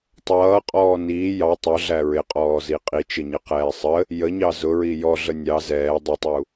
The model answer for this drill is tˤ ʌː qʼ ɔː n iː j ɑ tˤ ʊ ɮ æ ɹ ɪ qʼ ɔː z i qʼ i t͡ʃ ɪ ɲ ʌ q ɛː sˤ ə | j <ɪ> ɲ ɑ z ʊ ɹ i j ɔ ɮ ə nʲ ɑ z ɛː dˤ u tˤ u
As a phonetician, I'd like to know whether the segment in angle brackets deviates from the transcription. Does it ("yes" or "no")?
yes